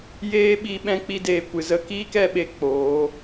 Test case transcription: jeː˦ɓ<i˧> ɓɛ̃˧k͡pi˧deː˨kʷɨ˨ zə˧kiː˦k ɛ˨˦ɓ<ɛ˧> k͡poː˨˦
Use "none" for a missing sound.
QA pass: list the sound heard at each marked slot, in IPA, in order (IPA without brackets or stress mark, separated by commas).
i˧, e˧